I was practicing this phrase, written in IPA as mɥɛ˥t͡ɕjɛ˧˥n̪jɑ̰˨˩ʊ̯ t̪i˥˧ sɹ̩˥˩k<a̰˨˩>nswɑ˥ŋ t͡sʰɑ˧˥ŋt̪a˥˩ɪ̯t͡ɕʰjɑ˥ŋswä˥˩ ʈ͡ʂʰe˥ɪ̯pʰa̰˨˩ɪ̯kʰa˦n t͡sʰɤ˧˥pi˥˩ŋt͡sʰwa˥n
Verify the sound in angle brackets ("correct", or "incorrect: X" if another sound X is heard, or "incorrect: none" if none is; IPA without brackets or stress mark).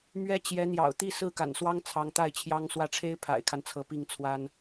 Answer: correct